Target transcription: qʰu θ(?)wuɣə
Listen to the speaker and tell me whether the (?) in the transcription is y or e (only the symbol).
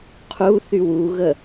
y